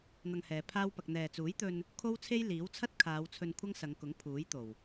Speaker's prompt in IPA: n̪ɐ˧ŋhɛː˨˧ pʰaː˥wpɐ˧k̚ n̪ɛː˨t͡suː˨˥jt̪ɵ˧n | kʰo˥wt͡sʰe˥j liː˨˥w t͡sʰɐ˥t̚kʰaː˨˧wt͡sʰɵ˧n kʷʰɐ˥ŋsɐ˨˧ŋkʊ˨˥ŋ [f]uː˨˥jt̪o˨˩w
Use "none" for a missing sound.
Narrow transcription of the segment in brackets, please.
pʰ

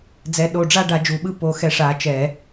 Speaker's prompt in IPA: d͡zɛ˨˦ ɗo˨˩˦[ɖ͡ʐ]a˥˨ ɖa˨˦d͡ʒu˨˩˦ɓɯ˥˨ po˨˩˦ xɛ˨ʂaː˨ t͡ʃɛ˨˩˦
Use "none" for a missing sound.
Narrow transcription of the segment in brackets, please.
ɖ͡ʐ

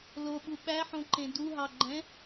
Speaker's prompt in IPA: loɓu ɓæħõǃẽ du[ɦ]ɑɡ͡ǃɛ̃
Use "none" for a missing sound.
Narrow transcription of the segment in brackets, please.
ɦ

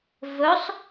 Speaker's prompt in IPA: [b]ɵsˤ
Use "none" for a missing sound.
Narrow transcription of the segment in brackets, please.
v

